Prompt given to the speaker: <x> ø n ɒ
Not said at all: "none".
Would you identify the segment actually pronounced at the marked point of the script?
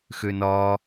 x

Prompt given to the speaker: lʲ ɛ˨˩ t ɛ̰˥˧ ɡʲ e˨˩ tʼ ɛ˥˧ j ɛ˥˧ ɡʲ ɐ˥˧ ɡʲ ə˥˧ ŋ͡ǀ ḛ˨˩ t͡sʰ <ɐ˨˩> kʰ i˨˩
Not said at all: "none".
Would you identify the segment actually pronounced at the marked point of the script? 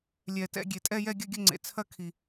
ɐ˥˧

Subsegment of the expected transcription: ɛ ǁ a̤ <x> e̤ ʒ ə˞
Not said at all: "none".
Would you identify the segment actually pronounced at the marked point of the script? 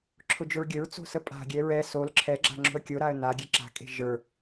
kʼ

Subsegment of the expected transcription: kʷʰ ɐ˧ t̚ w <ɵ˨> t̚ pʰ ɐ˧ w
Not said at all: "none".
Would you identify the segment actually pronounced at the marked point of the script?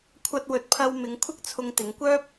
ɵ˨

